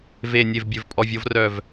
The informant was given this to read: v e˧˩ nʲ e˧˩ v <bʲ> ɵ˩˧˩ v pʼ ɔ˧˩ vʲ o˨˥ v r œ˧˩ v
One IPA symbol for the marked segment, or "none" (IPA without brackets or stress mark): bʲ